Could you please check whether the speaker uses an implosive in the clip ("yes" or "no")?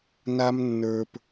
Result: no